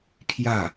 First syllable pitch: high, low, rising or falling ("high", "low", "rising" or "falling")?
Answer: falling